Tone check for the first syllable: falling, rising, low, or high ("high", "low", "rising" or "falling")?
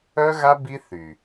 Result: high